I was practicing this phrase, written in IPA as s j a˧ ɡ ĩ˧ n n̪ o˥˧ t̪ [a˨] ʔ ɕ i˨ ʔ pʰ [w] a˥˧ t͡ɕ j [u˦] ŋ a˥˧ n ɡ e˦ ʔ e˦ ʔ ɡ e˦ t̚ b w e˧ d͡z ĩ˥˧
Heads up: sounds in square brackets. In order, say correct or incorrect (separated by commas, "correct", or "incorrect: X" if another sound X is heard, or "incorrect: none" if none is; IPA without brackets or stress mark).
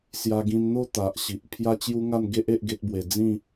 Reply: correct, incorrect: j, correct